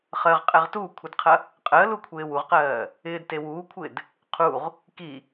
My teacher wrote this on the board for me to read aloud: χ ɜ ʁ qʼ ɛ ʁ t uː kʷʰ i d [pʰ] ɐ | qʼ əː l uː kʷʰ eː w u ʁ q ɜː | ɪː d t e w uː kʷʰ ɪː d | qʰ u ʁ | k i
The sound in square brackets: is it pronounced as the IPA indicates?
no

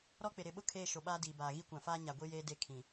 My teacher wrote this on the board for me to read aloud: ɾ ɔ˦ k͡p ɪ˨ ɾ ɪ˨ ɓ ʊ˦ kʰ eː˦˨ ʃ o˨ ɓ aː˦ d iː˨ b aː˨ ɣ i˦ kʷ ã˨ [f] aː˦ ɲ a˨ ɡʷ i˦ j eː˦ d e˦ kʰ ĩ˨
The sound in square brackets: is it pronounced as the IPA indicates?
yes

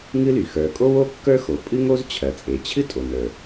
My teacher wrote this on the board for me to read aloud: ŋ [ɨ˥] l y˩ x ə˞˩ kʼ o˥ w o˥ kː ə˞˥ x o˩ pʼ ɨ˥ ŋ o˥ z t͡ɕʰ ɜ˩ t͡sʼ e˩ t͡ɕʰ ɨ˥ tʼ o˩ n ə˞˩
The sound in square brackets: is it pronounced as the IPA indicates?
yes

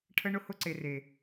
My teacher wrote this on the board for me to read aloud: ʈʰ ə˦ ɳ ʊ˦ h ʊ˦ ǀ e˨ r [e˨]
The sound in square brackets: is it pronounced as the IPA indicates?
yes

